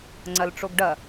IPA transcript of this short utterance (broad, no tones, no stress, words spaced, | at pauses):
ŋ͡ǀɐlʈ͡ʂoɡɖɐ